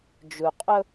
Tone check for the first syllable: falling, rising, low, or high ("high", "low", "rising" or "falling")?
low